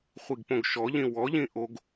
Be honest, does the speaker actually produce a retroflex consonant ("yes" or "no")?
no